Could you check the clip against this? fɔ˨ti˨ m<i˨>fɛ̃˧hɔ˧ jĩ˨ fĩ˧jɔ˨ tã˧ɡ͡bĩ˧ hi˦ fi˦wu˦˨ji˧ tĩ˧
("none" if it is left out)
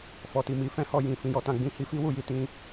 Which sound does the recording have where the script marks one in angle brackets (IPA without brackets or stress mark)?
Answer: i˨˦